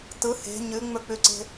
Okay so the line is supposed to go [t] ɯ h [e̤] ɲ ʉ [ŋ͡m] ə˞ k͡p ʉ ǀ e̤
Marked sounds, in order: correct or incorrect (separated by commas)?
correct, correct, correct